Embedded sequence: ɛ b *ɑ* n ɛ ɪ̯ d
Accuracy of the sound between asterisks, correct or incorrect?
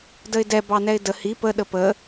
correct